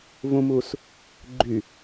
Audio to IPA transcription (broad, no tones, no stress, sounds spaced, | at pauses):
v ũ m u s | ɡ͡ǃ y